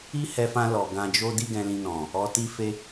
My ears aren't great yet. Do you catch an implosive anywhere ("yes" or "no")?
no